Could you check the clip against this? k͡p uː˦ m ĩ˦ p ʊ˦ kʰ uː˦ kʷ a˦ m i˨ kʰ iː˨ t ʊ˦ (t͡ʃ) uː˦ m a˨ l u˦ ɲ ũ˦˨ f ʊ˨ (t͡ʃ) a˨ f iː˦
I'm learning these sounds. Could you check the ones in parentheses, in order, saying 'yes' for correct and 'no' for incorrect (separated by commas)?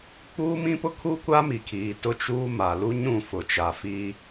yes, yes